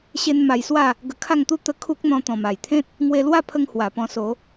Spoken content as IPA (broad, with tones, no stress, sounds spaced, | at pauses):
ɕ e˦ n m a˧ j s w a˥˧ | ɡ ə˧ kʰ a˥˧ ŋ t̪ u˦ t̪ ə˧ kʰ u˦ k̚ n̪ ɔ̃˧ t̪ ɔ̃˨˩ m a˨˩ j t̪ʰ ẽ˦ t̚ | ŋ w e˧ l w a˥˧ pʰ ə˧ ŋ h w a˨˩ p ɔ̃˧ s o˨˦